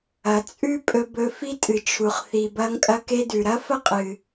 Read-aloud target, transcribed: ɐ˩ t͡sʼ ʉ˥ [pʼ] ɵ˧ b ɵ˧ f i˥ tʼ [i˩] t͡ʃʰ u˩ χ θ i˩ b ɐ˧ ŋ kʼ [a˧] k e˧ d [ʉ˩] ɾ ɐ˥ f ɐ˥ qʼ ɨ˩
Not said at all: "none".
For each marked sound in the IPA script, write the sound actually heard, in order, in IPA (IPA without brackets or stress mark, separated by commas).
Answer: pʼ, ɨ˩, ɐ˧, ʉ˩